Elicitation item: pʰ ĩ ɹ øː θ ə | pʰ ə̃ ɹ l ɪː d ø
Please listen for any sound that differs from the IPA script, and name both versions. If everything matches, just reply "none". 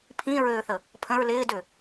none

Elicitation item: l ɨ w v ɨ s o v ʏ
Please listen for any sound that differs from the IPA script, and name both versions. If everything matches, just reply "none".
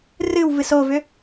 l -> r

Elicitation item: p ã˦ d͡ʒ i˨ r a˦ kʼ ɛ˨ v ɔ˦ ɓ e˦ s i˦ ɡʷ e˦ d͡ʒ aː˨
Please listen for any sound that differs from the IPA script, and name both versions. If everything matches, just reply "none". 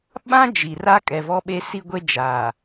p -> ɓ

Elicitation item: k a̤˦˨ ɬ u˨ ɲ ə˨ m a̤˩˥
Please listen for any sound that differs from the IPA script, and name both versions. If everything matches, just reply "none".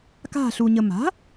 none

